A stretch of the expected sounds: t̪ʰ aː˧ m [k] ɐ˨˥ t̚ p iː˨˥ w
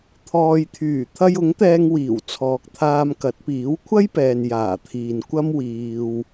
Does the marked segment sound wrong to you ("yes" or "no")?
no